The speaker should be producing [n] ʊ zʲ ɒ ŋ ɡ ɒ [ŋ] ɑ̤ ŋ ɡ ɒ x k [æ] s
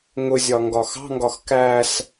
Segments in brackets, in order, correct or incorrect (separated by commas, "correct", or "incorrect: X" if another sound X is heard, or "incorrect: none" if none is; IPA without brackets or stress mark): incorrect: ŋ, incorrect: x, correct